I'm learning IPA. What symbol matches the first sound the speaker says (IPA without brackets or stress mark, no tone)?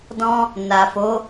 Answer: d